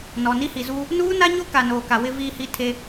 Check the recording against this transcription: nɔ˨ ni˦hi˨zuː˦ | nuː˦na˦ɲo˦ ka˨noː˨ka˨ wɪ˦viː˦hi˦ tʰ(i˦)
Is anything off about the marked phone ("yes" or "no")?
yes